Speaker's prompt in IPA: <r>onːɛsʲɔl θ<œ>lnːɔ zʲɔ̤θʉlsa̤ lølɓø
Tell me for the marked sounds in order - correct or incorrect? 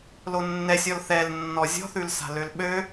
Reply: incorrect: l, incorrect: ɛ

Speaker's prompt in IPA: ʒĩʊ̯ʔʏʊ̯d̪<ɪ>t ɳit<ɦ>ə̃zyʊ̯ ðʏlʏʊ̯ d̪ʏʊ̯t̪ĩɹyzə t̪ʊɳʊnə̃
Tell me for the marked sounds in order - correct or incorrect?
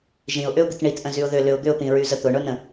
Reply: correct, incorrect: ʔ

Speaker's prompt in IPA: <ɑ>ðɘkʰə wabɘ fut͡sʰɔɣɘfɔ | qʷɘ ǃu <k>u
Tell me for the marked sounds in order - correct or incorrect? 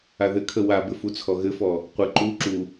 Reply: incorrect: a, incorrect: ǁ

